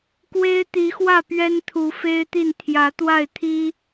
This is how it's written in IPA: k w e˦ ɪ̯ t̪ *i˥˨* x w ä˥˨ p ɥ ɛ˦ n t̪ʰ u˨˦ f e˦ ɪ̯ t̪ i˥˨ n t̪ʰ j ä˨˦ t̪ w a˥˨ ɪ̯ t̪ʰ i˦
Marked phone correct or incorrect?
incorrect